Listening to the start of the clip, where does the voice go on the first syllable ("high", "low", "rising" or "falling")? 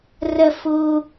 high